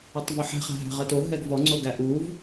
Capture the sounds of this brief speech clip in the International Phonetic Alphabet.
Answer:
ɵ tˤ v o ħ ɛ̤ χ æ̤ ɦ æ̤ ʁ ɜ t o ɦ ɛ ɡ v ɔ ŋ͡ǀ o ɡ æ ʔ u v

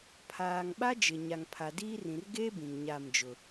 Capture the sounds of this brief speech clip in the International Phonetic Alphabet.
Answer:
pʰ aː˨ ŋ ɓ a˦ d͡ʒ ɪ˨ ɲ a˨ ŋ pʰ a˨ d iː˦ r ĩ˨ r ɡ e˦ b ĩ˨ ŋ ɲ a˦˨ m d͡ʒ ʊ˨

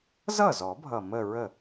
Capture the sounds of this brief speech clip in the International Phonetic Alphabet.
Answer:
z ʌ˥˩ z ɔ˨˩˦ bʱ ʌ˨˩ m ə˥˧ ɹ ə˥˩

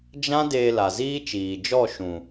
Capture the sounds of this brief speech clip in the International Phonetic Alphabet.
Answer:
d͡ʒ ã˦ d eː˧ l a˨ z iː˦ t͡ʃ iː˨ d͡ʒ ɔ˦˨ ʃ ũ˨

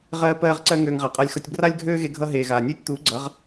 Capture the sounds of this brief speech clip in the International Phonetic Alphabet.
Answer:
ʁ ɜː˦ p ɜː˦ ʁ ǀ ɜ˦ ŋ øː˧ ŋ ʁ a˨ qʼ a˧ lʲ x ʌ˧ tʲ b r a˦ lʲ ɡʱ øː˦ ɣ e˧ ɡʱ ʌ˧ ɦ eː˨ ɣ aː˨ nʲ øː˦ tʲ t̪ uː˨˦ ɡ͡ǀ ʌ˨˦ ʁ

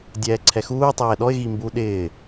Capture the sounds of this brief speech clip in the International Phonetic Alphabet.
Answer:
dʲ ɛː ǀʰ ɛ x uː tˤ ɛː ɗ ɔ ɪ̯ ɣ i m b u ɗ ɪː

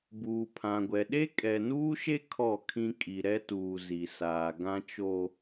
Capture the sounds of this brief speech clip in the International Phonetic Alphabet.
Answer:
b uː˨ pʰ ã˨ ɡʷ ɛ˨ ɗ e˦ kʼ ɛ˨ n uː˦ ʃ e˦ kʰ ɔ˦˨ kʰ ĩ˦ kʼ i˨ ɾ ɛ˦ t uː˨ z i˨ s aː˨ ɡ ã˦ t͡ʃ o˦

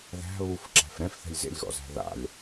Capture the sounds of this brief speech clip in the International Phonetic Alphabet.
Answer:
ð æ̤ β u f ǁ æ̤ f ɾ ɛ̃ f θ ɛ̤ lʲ z ḛ lʲ ɣ ɔ̰ z æ̤ ð a̰ lʲ

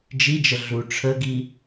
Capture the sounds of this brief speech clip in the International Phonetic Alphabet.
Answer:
d͡ʒ i d͡ʒ ə ɮ u ʈ͡ʂʰ ə ɡ i

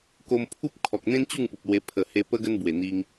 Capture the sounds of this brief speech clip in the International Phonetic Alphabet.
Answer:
k o˧ m pʰ u˦ p̚ kʰ ɔ˨ k̚ n̪ ẽ˦ n t͡ɕ u˥˧ ŋ p u˨ p̚ l w e˧ pʰ ə˨˩ h e˧ p ə˧ ɡ ə˦ n b w e˨˩ n̪ i˧ ŋ

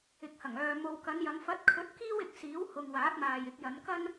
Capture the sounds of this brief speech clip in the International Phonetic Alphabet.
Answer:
ɪ˨˥ k̚ h ɐ˨˩ ŋ œː˨ m o˨ w k ɐ˨˧ n j ɐ˨˧ ŋ f ɐ˨˥ t̚ kʰ ɵ˨˥ t̚ k iː˥ w ɪ˧ k̚ s iː˨˥ w h ʊ˨ ŋ w aː˨˥ t̚ m aː˨ j ɪ˨˥ k̚ j ɐ˨˧ n k ɐ˥ n

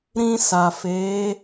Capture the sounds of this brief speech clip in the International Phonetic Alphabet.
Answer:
ɾ ĩ˧ s a˨ f e˨˦

